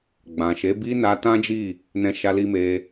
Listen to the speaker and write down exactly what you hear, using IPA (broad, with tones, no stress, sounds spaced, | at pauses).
ɡ͡b ã˨ ʃ e˨˦ b i˦ n a˧ t ã˦ d͡ʒ i˦˨ | n ɛ̃˧ ʃ a˧ l i˧ m e˧